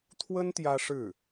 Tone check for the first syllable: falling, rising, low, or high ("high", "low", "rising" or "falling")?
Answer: high